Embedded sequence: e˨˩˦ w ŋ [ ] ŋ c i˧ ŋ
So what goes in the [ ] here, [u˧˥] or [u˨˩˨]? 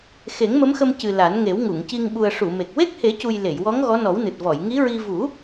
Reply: u˨˩˨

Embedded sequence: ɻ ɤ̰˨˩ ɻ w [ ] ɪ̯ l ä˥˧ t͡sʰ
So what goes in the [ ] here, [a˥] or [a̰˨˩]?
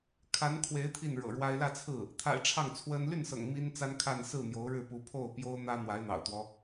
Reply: a˥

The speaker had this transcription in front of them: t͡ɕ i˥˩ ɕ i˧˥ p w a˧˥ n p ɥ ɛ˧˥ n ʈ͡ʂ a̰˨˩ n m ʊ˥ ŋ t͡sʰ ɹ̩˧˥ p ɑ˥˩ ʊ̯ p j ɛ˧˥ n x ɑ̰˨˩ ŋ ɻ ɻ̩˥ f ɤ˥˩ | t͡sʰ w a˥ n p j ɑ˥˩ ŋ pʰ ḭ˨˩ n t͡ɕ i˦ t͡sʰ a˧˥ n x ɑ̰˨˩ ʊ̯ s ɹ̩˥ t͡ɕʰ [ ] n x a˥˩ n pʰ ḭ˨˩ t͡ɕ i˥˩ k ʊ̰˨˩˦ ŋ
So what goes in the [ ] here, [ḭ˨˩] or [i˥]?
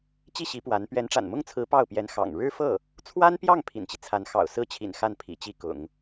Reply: ḭ˨˩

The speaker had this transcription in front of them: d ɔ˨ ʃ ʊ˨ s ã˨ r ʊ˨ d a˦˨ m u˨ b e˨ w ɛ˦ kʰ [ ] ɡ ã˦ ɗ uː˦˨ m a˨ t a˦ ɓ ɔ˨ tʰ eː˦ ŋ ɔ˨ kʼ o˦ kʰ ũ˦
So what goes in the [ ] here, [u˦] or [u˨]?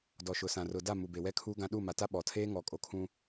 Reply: u˦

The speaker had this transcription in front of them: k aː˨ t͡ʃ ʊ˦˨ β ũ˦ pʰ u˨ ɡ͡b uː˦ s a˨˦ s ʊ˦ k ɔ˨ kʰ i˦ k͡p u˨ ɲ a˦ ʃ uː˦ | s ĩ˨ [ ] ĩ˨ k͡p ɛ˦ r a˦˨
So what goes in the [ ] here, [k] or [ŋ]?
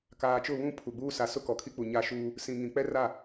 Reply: ŋ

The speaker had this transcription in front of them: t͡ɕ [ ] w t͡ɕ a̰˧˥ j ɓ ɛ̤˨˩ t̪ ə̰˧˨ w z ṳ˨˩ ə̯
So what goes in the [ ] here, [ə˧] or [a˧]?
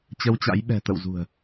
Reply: ə˧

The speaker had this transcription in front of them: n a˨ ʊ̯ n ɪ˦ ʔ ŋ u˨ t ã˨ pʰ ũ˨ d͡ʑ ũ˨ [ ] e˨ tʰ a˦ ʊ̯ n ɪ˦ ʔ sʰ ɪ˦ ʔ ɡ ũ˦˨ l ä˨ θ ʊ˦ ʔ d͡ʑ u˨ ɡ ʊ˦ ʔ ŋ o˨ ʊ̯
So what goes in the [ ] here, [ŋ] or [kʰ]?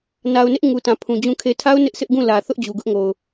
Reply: kʰ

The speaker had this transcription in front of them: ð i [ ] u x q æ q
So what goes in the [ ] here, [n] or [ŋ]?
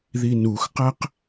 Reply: n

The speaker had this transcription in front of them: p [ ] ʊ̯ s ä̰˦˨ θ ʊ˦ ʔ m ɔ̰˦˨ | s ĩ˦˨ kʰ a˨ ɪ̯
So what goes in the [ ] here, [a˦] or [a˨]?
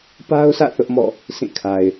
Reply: a˦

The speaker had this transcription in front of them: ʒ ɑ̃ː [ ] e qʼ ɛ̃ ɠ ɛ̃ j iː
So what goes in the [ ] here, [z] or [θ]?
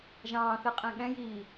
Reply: θ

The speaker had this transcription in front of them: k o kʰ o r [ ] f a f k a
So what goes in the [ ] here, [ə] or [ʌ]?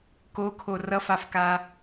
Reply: ʌ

